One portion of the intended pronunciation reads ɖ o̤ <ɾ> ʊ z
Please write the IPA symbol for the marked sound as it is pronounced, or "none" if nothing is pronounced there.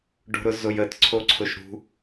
ɾ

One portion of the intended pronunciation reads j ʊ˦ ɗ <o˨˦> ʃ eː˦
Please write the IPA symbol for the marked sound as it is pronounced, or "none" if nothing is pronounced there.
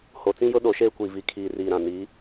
o˨˦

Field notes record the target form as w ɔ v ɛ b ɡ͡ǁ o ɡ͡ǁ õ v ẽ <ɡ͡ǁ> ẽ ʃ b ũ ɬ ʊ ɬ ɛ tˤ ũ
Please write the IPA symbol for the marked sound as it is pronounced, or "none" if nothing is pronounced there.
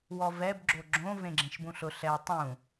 ɡ͡ǁ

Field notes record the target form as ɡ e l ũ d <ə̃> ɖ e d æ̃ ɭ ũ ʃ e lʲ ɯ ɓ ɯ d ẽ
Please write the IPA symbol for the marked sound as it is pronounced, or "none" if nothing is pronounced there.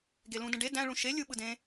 ə̃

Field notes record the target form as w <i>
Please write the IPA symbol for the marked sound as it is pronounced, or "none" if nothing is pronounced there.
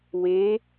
e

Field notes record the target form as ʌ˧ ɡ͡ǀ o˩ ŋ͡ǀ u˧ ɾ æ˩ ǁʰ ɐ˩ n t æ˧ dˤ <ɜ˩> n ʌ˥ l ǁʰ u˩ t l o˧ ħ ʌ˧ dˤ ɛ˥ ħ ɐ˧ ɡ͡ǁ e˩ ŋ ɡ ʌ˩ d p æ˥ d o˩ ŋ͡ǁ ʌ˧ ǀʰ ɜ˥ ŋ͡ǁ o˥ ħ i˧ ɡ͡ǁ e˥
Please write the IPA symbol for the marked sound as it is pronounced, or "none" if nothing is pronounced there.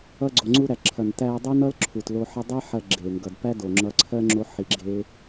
ɜ˥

